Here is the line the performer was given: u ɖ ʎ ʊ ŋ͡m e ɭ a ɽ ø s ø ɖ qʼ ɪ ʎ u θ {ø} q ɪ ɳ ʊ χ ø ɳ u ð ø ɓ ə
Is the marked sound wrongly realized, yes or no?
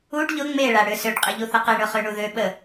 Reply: yes